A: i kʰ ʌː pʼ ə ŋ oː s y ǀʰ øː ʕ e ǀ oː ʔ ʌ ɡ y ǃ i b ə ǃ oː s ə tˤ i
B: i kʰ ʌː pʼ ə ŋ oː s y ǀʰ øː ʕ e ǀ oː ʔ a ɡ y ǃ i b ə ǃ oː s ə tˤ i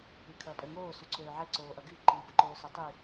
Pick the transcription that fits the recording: A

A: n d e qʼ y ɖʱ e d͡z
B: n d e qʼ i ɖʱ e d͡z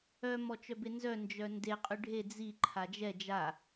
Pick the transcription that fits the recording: A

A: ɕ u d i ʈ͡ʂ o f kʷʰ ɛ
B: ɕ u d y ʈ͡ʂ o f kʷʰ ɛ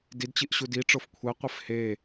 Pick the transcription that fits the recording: A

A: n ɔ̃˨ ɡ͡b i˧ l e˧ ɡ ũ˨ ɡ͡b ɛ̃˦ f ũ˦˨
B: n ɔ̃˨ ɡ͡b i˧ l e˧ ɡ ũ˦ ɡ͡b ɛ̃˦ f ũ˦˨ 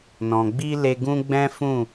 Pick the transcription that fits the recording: B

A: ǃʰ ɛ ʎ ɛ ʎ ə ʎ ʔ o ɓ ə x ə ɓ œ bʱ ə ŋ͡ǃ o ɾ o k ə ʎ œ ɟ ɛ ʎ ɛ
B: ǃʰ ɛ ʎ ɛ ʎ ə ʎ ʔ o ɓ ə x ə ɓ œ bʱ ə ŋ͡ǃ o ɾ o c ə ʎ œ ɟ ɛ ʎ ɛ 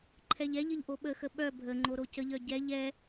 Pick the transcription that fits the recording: B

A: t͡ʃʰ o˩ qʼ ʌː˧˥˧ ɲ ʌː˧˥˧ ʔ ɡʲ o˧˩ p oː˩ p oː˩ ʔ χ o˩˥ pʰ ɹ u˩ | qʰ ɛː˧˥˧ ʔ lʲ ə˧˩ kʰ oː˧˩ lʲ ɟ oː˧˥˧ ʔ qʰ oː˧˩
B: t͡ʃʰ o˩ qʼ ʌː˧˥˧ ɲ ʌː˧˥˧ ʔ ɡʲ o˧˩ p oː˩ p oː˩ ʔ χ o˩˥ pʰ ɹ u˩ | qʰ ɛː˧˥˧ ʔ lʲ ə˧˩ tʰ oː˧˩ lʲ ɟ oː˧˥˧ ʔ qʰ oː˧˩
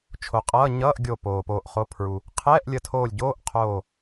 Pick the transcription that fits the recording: B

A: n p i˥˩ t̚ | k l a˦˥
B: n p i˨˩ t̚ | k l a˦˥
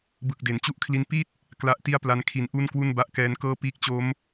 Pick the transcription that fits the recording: A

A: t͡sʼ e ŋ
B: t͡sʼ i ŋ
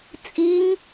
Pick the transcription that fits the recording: B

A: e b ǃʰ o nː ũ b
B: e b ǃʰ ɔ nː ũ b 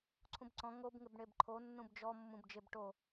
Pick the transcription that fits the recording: A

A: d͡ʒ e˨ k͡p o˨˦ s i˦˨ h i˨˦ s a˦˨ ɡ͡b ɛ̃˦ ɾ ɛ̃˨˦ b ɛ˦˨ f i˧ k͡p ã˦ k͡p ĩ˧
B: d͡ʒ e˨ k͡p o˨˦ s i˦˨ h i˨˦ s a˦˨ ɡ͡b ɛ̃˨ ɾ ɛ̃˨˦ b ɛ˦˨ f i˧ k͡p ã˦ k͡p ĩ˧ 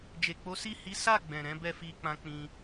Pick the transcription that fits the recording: B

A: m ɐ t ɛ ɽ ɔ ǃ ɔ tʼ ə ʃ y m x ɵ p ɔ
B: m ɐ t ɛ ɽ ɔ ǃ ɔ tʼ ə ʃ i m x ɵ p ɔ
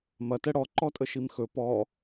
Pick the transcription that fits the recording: B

